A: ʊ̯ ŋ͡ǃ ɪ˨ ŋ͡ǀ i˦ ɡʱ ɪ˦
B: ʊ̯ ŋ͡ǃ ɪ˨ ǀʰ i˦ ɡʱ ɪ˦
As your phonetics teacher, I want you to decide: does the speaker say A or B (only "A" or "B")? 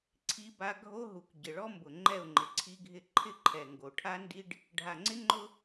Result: B